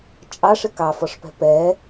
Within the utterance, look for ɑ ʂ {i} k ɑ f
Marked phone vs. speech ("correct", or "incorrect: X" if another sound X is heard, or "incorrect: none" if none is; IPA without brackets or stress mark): incorrect: ɪ